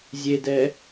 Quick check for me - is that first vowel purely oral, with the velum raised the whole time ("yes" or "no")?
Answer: yes